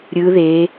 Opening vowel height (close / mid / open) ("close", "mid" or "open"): close